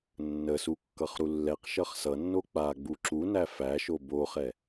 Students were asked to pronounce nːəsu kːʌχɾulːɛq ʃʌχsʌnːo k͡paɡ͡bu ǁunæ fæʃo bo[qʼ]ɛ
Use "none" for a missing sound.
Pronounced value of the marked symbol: χ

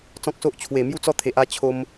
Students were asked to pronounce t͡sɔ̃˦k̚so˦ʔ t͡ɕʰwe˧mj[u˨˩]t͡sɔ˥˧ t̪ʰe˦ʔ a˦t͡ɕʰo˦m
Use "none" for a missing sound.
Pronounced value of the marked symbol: u˥˧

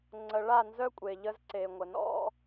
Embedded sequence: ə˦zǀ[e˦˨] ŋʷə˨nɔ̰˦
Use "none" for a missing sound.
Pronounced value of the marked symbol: e˨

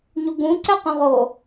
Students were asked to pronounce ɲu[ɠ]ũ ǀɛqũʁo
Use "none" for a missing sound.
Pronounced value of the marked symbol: ɡ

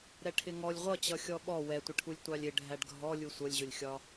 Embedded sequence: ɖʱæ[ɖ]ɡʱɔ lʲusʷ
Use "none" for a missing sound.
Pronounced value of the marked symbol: ɖ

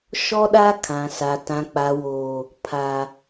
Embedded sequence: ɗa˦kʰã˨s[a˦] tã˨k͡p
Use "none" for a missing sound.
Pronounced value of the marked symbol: a˨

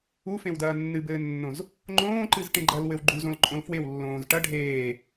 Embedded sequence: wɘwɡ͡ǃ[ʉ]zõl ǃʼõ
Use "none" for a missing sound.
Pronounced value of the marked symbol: u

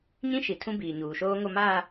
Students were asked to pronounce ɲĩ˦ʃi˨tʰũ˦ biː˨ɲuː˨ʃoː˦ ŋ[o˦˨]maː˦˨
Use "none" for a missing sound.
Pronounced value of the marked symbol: o˦˨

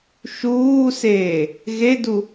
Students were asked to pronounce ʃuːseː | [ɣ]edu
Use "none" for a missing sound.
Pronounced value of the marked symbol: ɣ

